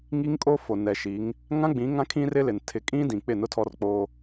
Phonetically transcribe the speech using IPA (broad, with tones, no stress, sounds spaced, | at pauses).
ŋ i˦ ŋ kʼ o˦ f o˨ n ɛ˨ ʃ i˨˦ ŋ | ŋ ã˦ ɡ͡b ĩ˨˦ ŋ ã˦ kʰ ĩ˦ r ɪ˦ l ɪ˨ n tʰ ɪ˨˦ kʼ ĩ˦ d ĩ˨ k͡p ɪ˦˨ n ʊ˦ tʰ ɔ˦ r k͡p oː˦